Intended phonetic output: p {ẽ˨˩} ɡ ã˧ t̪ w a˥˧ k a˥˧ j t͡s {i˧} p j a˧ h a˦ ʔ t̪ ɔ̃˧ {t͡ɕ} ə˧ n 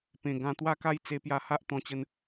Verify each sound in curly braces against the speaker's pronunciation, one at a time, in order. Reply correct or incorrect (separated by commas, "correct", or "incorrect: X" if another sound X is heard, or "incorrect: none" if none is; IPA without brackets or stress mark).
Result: correct, incorrect: e˧, correct